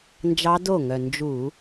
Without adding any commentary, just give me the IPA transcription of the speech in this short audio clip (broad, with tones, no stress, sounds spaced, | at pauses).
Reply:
n d͡ʒ ɑ˦˥ d o˥˩ ŋ œ˨˩ n d͡ʒ u˧˩˧